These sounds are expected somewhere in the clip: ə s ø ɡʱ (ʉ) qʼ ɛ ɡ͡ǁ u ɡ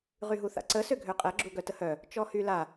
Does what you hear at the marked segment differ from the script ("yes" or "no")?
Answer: yes